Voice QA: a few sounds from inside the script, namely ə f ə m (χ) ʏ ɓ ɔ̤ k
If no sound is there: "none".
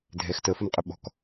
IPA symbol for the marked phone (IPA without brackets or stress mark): qʼ